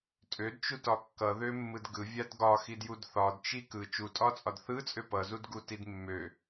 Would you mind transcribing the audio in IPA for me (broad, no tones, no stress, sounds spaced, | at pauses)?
tʼ ø d t͡ʃ u t ɒ kː ʌ ð ø mː ɯ d ɡ ɯ vʲ a d ɡ ɒ x i d j u d θ ɒ d t͡ʃ i k ɯ t͡ʃ u tʼ ɒ t͡sʼ ɒ d θ ɯ t͡sʼ ø p ʌ z u d ɡ u t i d mː ø